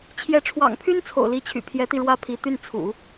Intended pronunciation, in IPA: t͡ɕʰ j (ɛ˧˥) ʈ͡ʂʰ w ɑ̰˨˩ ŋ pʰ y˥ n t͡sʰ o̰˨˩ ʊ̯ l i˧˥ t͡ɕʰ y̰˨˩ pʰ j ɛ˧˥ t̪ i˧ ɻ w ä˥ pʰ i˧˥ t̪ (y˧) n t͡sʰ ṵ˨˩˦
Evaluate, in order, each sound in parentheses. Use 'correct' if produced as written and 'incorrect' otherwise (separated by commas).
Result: correct, incorrect